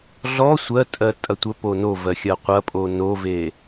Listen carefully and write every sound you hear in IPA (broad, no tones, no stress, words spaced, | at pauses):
ɮɔ sʷɜtʼɜ tʼɐtʷəpo novɜ xʲɐqʷɐpʼo nove